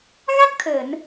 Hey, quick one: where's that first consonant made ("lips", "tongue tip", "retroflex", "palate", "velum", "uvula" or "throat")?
velum